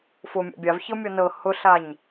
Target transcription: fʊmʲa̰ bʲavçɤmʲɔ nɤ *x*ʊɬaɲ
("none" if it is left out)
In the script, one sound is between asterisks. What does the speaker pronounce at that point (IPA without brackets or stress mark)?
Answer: h